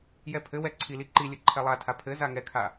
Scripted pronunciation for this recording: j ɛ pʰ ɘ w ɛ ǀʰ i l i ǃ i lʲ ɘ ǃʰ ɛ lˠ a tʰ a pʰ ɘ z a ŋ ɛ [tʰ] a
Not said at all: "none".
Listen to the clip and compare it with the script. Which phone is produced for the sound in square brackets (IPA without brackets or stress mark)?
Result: kʰ